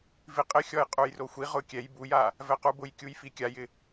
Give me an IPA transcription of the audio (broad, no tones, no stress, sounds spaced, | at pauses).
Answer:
v i qʼ ɪ xʲ ɔ j qʼ u j r o xʷ i ʁ ʊ kʲ ɛ j b u j a | v ɛ q u b ʊ j kʲ u j f i kʲ a j ɪ